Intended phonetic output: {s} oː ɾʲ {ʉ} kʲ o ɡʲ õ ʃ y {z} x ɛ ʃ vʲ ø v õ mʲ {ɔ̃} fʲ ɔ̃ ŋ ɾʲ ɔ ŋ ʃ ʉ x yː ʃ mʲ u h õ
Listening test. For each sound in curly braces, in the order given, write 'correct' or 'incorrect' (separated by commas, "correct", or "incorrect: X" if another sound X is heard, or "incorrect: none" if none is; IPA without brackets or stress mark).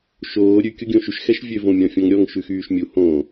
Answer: incorrect: ʃ, correct, incorrect: ʃ, correct